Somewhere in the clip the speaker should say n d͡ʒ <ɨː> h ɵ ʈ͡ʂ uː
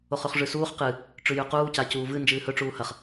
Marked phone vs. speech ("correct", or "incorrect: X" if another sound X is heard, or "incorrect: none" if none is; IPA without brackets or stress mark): correct